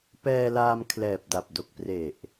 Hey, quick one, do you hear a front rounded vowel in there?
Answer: no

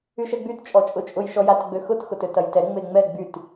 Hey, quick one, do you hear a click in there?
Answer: no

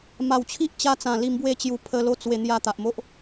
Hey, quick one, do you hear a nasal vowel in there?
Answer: yes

